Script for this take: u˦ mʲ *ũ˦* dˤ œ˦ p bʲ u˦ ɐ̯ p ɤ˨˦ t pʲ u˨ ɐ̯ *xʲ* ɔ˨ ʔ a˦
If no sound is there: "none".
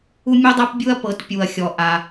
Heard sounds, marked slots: u˦, xʲ

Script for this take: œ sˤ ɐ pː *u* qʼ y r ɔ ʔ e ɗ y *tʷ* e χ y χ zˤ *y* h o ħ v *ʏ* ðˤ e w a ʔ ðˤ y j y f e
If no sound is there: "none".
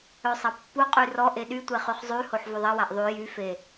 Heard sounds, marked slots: u, tʷ, y, ʏ

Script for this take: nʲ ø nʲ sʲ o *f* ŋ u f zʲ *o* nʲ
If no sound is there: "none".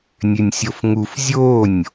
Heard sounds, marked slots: f, o

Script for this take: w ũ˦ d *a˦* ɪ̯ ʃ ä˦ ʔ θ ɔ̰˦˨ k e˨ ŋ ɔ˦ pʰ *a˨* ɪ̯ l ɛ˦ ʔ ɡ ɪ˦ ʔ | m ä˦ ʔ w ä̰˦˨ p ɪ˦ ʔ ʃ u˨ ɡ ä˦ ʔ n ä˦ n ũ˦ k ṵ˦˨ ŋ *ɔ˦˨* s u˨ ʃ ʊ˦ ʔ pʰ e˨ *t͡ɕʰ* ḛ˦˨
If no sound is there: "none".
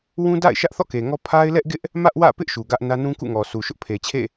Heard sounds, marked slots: a̰˦˨, a˦, ɔ˨, t͡ɕʰ

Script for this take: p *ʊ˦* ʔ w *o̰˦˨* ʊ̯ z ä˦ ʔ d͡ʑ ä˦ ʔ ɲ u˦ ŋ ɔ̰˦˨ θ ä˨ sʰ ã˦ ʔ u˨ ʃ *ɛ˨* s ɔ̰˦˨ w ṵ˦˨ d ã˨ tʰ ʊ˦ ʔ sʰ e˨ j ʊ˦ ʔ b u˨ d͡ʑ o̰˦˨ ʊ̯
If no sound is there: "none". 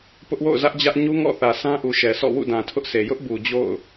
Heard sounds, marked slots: ʊ˦, o̰˦˨, ɛ˨

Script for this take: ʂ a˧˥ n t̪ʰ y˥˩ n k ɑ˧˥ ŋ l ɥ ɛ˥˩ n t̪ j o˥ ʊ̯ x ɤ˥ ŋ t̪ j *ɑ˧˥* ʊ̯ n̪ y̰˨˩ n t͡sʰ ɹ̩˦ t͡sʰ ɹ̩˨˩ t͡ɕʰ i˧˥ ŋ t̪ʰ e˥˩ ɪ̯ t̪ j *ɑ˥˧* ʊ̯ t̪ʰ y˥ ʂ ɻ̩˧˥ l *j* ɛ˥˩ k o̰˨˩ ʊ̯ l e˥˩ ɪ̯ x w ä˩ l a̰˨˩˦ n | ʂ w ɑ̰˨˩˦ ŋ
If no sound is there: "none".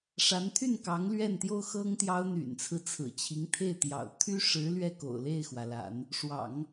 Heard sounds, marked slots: ɑ˥, ɑ̰˨˩, ɥ

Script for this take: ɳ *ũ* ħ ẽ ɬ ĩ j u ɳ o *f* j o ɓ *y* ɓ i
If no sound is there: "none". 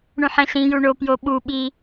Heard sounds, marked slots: ũ, p, u

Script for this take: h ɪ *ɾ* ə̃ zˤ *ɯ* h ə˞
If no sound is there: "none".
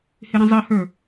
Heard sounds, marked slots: ɾ, ə

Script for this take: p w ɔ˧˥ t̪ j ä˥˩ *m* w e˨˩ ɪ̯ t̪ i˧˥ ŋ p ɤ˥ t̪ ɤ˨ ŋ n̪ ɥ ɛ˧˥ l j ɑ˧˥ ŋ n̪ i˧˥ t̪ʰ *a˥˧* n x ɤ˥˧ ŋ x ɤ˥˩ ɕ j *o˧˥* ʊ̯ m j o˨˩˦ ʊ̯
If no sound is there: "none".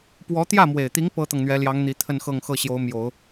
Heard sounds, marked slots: m, ə˥˧, o˧˥

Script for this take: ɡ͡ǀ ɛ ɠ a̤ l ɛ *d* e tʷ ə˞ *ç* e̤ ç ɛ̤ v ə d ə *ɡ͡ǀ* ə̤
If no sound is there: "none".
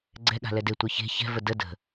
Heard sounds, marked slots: d, ç, d

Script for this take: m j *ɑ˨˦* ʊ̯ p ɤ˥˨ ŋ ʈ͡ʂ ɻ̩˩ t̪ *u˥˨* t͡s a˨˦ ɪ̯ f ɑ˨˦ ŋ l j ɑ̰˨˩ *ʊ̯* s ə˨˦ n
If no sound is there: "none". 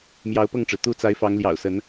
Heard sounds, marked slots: ɑ˨˦, u˥˨, ʊ̯

